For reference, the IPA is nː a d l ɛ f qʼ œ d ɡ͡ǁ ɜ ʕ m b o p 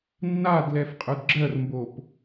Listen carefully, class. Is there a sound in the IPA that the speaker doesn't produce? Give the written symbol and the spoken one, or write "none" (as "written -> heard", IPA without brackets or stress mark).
ʕ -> r